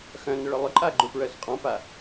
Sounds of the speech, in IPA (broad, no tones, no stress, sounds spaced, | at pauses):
x œ̃ n ʏ ɭ ʊ lˠ ʏ ǃʼ a ɡ͡ǃ u p ɹ œ s qʼ ɔ̃ p a